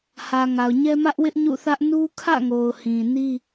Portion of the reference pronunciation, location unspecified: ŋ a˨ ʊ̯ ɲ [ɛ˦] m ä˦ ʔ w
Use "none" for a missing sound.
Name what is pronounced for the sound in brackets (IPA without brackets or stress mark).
ɛ˦